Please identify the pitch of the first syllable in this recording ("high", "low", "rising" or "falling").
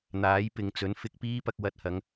rising